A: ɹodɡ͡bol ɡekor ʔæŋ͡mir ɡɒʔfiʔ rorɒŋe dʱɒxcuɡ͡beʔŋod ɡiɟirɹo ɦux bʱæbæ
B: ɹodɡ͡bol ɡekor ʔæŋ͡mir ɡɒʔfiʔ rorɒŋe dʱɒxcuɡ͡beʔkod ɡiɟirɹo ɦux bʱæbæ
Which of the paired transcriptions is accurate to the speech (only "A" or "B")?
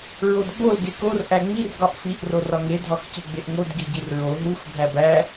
A